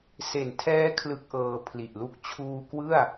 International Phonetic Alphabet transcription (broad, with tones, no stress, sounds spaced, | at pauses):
s e˨˩ n tʰ ɛː˦˥ kʰ l ɯ˦˥ k̚ ʔ ɤː˧ pʰ l i˨˩ ʔ l u˥˩ k̚ t͡ɕʰ uː˧ k w ɯ˥˩ a̯